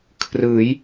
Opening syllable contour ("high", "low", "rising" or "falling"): rising